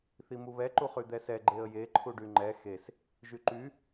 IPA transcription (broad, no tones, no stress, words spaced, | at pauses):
θimuβɛ ǃuχyd̪ɛsɛ ɡ͡ǃeə̯je ǃʰuɖyŋ͡ǃɛ xes | ʒyǃy